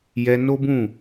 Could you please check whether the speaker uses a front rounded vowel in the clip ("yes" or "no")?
no